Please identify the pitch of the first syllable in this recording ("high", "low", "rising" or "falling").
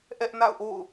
high